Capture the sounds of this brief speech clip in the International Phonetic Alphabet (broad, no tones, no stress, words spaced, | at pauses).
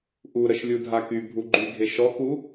ʔu ɾəʃlʲudʱaky bʱuɡ͡ǃyɡʱe ʃɔku